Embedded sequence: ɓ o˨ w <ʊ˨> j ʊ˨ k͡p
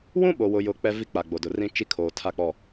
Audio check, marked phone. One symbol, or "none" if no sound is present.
ʊ˨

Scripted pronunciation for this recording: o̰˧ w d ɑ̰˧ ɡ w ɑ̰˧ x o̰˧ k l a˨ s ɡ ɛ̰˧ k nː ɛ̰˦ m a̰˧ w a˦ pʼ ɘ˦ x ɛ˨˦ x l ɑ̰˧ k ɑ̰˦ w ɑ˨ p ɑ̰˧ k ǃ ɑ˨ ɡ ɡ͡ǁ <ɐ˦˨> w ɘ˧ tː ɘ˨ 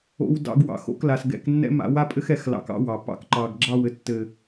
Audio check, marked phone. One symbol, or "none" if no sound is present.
ɑ˦˨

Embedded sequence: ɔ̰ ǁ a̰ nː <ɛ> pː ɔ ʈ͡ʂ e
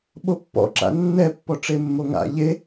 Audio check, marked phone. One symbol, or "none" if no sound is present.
ɛ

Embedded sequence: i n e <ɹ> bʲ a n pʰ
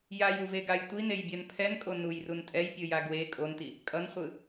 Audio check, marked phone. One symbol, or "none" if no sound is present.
j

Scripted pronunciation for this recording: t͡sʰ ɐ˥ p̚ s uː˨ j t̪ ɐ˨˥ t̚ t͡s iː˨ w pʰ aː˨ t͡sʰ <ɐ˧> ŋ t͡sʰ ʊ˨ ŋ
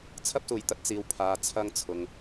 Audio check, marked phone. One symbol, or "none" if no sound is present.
ɐ˧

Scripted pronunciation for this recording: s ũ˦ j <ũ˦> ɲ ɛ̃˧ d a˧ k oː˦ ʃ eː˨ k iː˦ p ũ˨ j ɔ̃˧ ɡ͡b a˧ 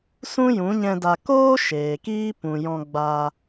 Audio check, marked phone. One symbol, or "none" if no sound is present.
ũ˨˦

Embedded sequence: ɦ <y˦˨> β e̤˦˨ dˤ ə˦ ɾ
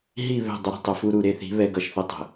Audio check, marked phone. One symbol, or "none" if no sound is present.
i˦˨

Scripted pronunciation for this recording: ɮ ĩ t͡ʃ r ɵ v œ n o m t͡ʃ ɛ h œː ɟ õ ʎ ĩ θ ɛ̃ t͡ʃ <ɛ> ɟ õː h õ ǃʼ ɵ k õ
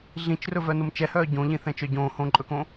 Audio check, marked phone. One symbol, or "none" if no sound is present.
œ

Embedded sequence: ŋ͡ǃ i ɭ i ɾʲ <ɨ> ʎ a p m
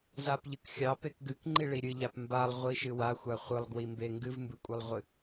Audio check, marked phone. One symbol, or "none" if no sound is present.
ɨ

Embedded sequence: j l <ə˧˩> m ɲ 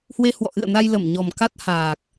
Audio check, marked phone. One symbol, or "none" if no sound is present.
ə˧˩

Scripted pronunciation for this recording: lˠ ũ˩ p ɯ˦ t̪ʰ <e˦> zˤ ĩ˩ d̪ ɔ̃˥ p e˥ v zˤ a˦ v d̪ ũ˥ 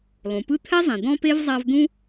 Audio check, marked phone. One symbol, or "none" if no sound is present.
ɛ˦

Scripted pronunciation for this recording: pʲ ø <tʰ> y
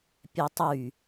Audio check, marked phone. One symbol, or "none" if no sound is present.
tˤ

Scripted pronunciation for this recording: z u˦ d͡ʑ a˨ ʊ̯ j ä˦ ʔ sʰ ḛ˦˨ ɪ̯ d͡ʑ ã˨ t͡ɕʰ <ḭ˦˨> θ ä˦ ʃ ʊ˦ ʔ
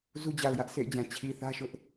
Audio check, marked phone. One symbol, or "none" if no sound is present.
i˨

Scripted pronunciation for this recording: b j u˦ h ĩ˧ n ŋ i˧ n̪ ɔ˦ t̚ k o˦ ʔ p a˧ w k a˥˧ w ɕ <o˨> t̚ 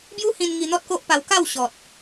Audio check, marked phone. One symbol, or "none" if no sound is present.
ɔ˨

